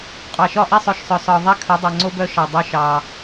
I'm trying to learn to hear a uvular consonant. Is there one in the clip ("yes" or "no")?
yes